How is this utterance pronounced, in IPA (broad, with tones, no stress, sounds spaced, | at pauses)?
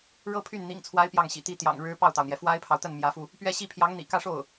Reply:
ɻ ɤ˥ pʰ y˥˩ n n̪ ḭ˨˩ ŋ t͡sʰ w a˧˥ ɪ̯ p j ɑ˥˩ ŋ ɕ ḭ˨˩ t̪ i˥ t̪ j ɑ̰˨˩ ŋ ɻ ɻ̩˧˥ p ɑ˥˩ ʊ̯ t̪ ɑ˩ ʊ̯ n̪ j ɛ˩ f w a˥ ɪ̯ pʰ ɑ˨ ʊ̯ t̪ ə˥˩ n m j ä˧˥ f u˧ | p ɥ ɛ˥ ɕ i˥ pʰ j ɑ˧˥ ŋ n̪ ḭ˨˩ k ä˥˧ ʂ o˥˩ ʊ̯